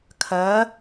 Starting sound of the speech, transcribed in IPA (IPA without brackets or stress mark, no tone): kʰ